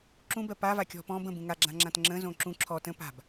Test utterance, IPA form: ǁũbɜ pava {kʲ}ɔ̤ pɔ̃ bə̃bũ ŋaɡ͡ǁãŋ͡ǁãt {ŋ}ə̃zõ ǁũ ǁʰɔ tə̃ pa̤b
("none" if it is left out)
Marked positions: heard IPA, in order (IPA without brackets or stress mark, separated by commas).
kʲ, ŋ͡ǁ